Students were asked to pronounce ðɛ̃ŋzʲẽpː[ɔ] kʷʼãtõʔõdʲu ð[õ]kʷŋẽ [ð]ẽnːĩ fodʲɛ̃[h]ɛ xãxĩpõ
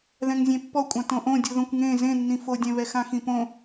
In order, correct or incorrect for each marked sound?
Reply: correct, correct, incorrect, incorrect

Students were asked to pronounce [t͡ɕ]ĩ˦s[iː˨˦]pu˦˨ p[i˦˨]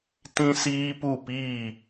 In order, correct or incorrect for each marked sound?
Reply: incorrect, incorrect, incorrect

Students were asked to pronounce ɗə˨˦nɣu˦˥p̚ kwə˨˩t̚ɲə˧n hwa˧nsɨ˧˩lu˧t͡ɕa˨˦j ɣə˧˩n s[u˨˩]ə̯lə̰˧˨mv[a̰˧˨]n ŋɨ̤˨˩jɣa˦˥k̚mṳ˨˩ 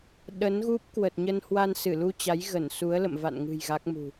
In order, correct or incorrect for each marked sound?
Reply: incorrect, correct

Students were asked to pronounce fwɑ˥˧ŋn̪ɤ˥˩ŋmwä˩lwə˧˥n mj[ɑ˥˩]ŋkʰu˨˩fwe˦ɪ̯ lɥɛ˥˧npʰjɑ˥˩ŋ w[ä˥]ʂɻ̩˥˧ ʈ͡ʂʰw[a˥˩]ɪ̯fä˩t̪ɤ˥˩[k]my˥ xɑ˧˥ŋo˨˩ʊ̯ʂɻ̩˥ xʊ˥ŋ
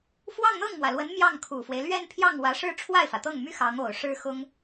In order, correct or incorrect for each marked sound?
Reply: correct, incorrect, correct, incorrect

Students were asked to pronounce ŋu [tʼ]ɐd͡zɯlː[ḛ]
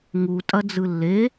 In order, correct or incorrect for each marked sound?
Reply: correct, incorrect

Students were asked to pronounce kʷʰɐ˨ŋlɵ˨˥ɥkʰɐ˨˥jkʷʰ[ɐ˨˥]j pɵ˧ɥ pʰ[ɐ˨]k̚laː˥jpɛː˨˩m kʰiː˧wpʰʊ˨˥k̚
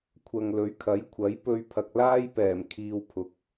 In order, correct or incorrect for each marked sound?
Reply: correct, correct

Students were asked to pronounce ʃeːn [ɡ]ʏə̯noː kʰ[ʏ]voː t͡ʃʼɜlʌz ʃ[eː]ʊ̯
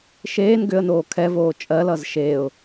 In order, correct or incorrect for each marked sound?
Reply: correct, incorrect, correct

